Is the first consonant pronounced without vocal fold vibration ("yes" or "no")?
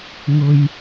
no